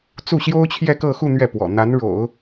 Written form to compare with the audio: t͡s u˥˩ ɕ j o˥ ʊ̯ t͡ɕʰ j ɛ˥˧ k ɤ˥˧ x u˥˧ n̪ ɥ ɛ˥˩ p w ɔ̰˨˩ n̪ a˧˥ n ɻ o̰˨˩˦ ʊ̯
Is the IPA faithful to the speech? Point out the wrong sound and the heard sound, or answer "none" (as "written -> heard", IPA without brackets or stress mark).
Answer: none